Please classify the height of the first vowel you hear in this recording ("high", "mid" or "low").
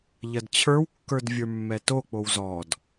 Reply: low